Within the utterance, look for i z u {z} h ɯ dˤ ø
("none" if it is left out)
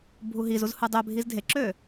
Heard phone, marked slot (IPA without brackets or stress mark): z